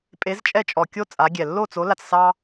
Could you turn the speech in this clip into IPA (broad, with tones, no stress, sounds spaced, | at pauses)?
pʼ e˨˥ z t͡ʃʼ ɛ˥˩ t͡ʃʼ ɔ˨˩ kʲ o˥ t͡sʼ a˨˥ ɡʲ ɛ˨˩ lː o˥˩ t͡s o˨˥ l a˥˩ t͡s s ɑ˥